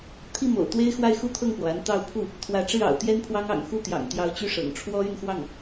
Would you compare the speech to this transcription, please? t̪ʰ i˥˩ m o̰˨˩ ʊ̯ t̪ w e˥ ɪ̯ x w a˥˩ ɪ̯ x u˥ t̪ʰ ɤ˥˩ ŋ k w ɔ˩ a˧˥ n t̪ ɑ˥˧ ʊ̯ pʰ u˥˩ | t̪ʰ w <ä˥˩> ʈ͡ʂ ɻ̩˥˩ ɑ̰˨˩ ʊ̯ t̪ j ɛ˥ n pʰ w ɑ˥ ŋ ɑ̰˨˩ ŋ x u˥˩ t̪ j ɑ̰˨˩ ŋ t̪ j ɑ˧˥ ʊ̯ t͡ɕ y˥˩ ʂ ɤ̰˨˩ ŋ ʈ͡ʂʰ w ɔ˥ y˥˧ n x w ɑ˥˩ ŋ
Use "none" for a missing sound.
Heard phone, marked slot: ä˧˥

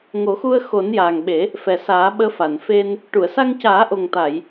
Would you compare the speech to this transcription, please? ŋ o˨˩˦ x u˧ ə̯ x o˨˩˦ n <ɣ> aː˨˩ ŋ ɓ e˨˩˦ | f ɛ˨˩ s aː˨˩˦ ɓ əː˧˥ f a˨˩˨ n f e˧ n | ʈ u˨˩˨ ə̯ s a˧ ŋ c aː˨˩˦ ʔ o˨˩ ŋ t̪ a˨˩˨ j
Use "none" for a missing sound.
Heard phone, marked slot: j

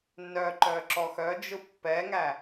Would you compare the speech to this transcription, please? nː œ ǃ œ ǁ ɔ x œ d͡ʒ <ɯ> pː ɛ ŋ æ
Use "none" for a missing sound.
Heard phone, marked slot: ɯ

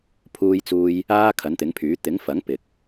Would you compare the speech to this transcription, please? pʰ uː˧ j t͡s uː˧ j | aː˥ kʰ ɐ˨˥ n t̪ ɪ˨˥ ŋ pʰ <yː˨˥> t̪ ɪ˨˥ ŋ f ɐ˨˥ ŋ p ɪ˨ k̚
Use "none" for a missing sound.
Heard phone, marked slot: yː˨˥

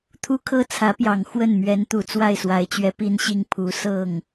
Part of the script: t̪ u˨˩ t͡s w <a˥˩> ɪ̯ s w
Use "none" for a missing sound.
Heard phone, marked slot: a˥˩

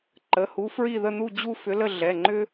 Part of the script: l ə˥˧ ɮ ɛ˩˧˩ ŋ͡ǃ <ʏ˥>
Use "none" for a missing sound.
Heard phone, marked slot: ʏ˥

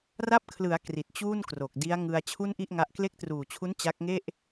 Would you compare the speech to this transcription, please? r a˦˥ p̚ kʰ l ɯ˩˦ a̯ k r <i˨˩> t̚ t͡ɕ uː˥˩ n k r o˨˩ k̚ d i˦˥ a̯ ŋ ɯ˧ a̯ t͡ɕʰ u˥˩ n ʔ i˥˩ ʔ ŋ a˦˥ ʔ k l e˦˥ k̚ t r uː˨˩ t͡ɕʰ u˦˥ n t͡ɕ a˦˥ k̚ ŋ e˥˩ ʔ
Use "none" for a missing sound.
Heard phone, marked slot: i˨˩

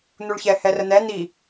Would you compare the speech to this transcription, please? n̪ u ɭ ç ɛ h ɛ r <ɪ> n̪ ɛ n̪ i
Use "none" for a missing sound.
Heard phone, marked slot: ə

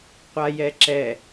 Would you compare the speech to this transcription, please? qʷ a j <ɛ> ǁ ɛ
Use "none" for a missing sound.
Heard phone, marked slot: ɛ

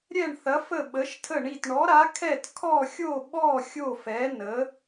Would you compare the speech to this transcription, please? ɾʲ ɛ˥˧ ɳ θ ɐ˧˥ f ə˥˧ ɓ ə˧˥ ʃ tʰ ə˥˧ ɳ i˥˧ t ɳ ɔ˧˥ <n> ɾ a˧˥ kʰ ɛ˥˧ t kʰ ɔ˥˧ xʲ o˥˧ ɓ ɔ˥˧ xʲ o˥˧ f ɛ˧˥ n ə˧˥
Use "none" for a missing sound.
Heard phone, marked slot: none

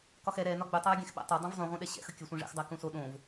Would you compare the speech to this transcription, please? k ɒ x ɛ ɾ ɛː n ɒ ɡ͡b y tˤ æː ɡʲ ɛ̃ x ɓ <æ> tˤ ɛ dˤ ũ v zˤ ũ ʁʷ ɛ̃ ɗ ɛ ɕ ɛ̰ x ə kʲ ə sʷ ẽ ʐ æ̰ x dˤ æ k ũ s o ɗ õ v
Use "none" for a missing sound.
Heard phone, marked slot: æ̰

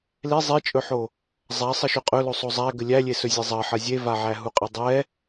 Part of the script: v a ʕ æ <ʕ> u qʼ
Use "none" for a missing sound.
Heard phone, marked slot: ɦ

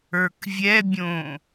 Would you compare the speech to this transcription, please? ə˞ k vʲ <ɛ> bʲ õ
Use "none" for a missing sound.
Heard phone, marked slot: ɛ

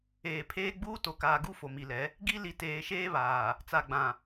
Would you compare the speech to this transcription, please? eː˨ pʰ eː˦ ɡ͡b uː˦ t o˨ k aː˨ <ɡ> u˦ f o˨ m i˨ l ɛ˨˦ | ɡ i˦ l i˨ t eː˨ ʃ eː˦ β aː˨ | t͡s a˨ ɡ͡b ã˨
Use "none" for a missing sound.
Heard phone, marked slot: ɡ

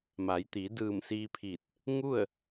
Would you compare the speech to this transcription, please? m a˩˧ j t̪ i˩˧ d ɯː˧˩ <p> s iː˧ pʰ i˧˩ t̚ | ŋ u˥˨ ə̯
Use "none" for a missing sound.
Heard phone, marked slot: m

